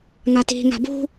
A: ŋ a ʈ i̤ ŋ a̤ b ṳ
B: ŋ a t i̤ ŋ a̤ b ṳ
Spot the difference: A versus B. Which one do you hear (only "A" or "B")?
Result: B